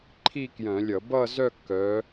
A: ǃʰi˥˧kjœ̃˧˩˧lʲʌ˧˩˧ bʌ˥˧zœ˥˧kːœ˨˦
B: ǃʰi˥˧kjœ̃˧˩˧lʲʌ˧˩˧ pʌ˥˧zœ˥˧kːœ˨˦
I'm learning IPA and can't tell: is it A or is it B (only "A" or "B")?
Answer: A